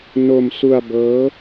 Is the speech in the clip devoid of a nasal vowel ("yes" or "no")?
yes